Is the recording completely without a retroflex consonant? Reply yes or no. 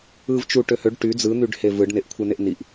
no